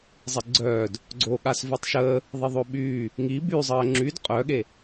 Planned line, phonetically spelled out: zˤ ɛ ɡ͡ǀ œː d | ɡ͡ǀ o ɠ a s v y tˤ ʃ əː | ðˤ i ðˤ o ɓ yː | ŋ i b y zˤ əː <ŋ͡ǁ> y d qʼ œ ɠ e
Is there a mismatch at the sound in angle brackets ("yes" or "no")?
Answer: no